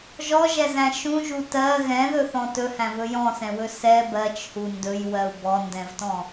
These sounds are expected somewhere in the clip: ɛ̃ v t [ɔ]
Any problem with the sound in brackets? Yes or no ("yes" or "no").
yes